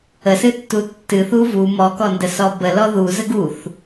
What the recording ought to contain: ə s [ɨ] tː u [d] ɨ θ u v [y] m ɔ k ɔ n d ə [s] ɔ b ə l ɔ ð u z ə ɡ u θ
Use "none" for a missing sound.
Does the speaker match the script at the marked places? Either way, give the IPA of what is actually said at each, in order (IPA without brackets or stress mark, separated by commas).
ɨ, tː, u, s